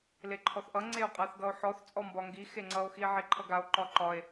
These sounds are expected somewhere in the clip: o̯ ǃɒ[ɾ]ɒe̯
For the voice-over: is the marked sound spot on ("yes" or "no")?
no